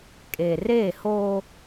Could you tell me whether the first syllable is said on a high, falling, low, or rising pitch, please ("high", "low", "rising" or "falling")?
low